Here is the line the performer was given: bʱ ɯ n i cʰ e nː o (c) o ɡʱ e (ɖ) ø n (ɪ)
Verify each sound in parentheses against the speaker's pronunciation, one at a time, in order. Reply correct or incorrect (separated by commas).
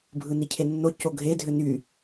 correct, incorrect, incorrect